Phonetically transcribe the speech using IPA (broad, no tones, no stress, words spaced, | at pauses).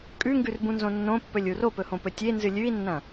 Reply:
kʼʉŋɡʉrbũnzõ nːõpːɵlʲu ropɵhõpɵ tʲenzɨ lʲʉi̯nːɐ̃